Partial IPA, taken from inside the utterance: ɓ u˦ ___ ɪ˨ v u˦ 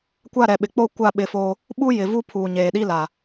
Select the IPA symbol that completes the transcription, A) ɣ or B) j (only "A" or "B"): B